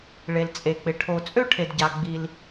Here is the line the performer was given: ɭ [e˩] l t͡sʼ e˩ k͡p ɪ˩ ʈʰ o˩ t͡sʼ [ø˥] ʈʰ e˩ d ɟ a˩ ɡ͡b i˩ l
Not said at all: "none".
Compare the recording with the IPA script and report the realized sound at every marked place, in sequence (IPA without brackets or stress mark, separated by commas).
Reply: e˩, ø˥